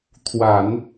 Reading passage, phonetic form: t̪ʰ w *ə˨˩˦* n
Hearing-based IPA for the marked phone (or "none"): a˨˩˦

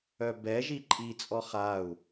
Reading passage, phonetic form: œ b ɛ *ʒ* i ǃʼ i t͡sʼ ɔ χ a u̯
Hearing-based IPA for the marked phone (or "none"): ʒ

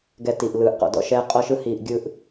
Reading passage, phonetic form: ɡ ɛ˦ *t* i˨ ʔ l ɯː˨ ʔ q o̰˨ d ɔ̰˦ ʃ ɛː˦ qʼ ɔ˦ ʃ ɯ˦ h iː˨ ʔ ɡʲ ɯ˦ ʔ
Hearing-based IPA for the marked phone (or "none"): t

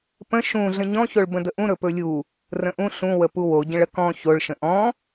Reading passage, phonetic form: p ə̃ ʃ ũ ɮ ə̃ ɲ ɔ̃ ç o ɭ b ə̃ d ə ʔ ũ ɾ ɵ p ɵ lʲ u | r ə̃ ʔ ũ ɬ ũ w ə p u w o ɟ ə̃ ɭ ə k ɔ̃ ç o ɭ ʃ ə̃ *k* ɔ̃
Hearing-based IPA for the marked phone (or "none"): ʔ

